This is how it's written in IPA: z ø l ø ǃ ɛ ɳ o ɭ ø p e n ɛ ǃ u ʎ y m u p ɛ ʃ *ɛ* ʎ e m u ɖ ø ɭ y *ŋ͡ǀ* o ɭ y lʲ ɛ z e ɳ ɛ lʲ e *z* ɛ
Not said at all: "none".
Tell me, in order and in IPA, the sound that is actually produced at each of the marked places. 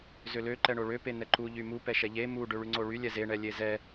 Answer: ɛ, ŋ͡ǀ, z

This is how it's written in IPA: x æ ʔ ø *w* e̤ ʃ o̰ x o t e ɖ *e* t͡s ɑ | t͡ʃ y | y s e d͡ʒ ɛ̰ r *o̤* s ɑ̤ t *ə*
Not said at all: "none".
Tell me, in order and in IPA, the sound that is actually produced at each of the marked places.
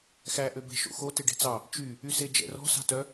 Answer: b, e̤, ɔ̤, œ

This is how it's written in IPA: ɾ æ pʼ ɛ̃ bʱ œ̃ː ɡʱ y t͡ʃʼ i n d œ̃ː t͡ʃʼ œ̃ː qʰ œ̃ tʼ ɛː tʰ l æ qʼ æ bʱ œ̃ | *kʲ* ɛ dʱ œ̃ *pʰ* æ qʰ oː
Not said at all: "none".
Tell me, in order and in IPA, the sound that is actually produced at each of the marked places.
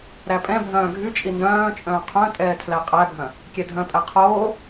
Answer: kʲ, pʼ

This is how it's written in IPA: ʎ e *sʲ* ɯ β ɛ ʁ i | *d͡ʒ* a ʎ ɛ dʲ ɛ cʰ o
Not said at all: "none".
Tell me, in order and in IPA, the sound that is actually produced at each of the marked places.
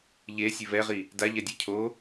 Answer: sʲ, d

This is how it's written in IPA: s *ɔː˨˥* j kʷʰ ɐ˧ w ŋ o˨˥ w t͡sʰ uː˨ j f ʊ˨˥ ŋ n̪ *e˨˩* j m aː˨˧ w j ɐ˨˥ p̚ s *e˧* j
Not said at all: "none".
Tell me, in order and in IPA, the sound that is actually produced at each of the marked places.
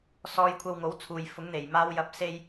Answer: ɔː˧, e˨˩, e˧

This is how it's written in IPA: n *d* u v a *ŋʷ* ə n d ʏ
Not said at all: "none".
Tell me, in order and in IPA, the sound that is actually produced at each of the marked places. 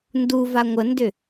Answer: d, ŋʷ

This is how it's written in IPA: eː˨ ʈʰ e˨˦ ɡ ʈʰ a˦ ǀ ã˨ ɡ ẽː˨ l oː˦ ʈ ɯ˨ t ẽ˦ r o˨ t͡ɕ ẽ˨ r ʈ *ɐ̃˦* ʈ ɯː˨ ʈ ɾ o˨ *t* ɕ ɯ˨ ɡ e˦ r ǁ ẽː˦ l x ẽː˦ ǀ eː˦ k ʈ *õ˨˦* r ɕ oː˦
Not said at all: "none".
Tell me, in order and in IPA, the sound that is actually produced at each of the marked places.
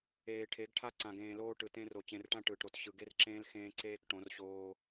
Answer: ã˦, t, õ˨˦

